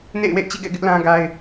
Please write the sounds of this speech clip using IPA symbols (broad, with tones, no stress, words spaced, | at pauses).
nḛ˦˨ɪ̯wḛ˦˨ɪ̯t͡ɕḭ˦˨ɡɛ̰˦˨ ɡɪ˦ʔlã˦ɡa˦ɪ̯